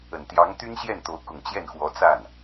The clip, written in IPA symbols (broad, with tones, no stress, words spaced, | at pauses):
ə˨˩nt̪jɑ˧˥ŋ t̪y˥nɕjɛ˥˩nt̪o˧˥ʊ̯ kʊ˨˩ŋt͡ɕjɛ˥˩n xwɔ˧˥t͡sa˥˩n